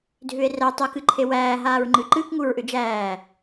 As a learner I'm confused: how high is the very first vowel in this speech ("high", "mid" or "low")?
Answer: high